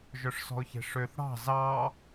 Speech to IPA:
ʒ œ ʂ s ɔ̤ ʊ̯ ç e̤ ʂ ø θ ɽ ɑ̤ z ɑ

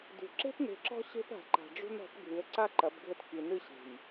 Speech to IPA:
d ṳ˨ ǁ e̤˦ p n e̤˨ ǁ ɔ̤˦ ɕ e̤˦ p a̤˨ ǃ a̤˨ ɖ͡ʐ ṳ˦ n ɔ̤˨˦ p ɡʱ ɨ˨˦ ə̯ ǀ a˦ ǃ ɐ˨˦ b ɡʱ ɘ˦ t k i˨ n ɨ˦ ɕ e̤˨ j

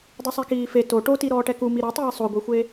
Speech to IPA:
dˤ u sˤ e k iː f e t o ʈ o t i ɾ ɔː ʈ ɛ k u m i ɾ ɔ tˤ iː sˤ o ɡʷ i xʷ e

